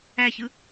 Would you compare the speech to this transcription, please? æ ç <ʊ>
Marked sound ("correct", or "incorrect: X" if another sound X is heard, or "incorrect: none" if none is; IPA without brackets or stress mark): incorrect: ɯ